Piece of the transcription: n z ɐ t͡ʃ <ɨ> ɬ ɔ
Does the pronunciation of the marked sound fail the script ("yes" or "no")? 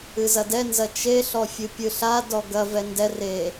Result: yes